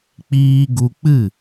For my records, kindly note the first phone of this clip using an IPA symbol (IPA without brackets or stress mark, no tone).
k͡p